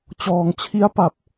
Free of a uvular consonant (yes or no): yes